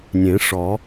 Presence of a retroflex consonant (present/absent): present